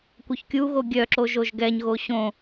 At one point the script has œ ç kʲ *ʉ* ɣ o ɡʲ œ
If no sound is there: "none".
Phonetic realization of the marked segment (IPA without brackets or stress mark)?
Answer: u